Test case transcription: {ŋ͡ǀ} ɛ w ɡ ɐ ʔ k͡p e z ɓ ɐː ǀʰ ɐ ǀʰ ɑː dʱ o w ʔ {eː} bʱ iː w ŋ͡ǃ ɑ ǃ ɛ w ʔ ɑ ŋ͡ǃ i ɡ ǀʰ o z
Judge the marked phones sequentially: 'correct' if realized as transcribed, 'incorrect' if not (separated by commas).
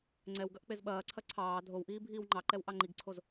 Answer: correct, incorrect